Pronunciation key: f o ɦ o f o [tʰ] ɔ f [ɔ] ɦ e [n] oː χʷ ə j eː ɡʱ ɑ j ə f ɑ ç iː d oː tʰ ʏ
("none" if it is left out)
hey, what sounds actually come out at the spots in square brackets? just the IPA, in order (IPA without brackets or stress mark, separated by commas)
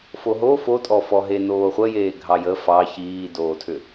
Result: tʼ, ɔ, n